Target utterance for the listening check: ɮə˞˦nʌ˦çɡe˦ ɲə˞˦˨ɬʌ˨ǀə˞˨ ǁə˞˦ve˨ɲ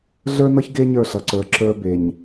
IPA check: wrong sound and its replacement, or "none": v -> b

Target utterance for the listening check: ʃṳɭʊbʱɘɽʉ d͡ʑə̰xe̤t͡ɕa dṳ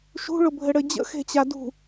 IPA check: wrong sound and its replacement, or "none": ʉ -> ɘ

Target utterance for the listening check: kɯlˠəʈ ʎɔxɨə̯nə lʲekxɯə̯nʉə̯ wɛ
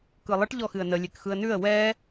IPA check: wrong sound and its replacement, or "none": none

